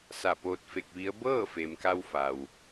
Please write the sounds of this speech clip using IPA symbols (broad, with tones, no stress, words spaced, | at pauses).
sa˧˩po˧t̚fe˧k̚ʋi˧˥ə̯ bɤː˥˨fe˩mka˧wfa˩w